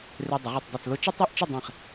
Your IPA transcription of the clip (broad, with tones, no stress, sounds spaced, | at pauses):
r e˧ dˤ ɪ˩˧ ʁ e˧˩ tˤ dˤ i˧˩ t͡s l ʊ˥˧ t͡ʃ ɪ˥ tˤ o˥˧ ʔ t͡ʃ ə˥˧ dˤ ẽ˧˩ χ